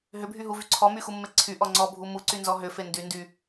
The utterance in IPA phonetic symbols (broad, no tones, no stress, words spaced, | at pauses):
ɦʏbʱyɦuvy ǀʰɔmyxumːe ǀʰyʔɔ ŋ͡ǀɔbʱu muǀynzɔ ɦʏfe ndyndy